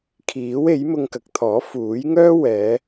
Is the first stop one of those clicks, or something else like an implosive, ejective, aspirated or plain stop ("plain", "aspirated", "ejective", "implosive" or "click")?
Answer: aspirated